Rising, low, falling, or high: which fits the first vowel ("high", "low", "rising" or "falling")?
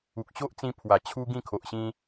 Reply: low